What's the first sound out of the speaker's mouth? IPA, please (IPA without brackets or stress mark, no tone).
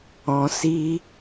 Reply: ɔ̃